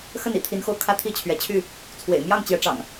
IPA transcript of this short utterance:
xə˥˨nḭ˨˩t̪ʰi˨˦nxo˧ʊ̯ kʰä˦t̪ʰi˥˨ t͡ɕʰɥɛ˨˦t͡ɕʰy˥˨ | t͡sʰwḛ˨˩ɪ̯ mjɑ˥˨ŋ t͡ɕjɛ˨˦ʈ͡ʂɑ̰˨˩ŋ

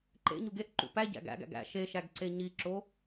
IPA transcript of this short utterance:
ǃḛɲuɡ eʔǃṵ pæɟæ̰ ɡæ̰ɡæ̰ɡ æ̰ ʃeʃæɡ ǀeɲiǁo

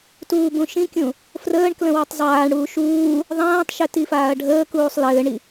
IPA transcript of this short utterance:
tuːbũʃĩkʲũ | frəːɳ klə̃witˤzˤaːɳɽuː ʃuː | ðˤãːtˤʃɘ tifaːɐ̯ɖʱəːkuːsˤ lɘːɳi

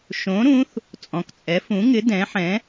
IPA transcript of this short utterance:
ʃõ˨˥ɾũ˨˥θ | t͡sʼɔ̃˨k t͡sʼɛ˨˥fũ˨˥ŋɪ˨˥ dɛ̃˨˥ħɛ̃˨˥

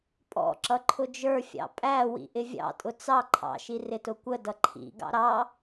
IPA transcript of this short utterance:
pʼɔ̰ǁʌ ǃʰʊd͡ʒə˞fʲɑ̰ pʼæwḭ ʔɪvʲɑ̰tʼʊ t͡sɑ ǃʰɑ̰ʃi rɪtʊkʷədʌ ǃʰḭɡɑ̰ ɾɑ

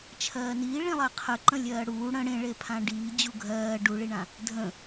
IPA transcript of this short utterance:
t͡ʃʰɜːniː ɭĩlˠɜqʰəǃə̃ lʲɜːɽuː ɽə̃ ɽẽɭe pʰãɖiː d͡ʑuɡʱɜː ɖuɭiɳã | dʱə̃

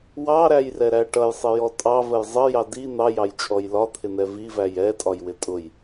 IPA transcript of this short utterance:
wɑɾæjrɛɾæ ʈʌjsˤɪjɔ tʼɑvəj zˤəjɑ di n̪ɑjɑjt͡ʃʼɔj lɒt̪ʰɪn̪ɛ vivæj ɛtʼɒjwɪ tʼʊj

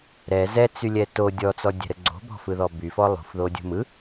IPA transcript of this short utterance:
ɾɛ zɛt͡sylʲɛ to dʲɔt͡sɔdʲɛ̤ɾə ɡ͡ǀo̤bɔ̤fɯðɔ byfɔ lˠṳfðodʲṳ mɯ

